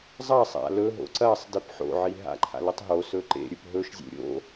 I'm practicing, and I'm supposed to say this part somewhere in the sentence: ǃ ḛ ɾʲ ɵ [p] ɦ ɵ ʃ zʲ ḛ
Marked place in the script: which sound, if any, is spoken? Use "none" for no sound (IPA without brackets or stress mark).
p